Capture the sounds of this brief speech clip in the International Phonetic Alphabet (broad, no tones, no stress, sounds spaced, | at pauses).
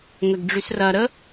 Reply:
ŋ ə ɡ ɖ͡ʐ y s r ɐ ɾ ə